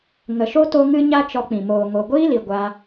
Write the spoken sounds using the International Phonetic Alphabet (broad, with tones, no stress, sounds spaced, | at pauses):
ŋ ə˨ ʃ o˦ t o˧ ŋ ɨ˦ ɲ a˦ t͡ʃ ɔ˧ k͡p ĩ˨ m oː˨ ŋ o˨ ɡʷ iː˦ l i˨ ɡʷ a˧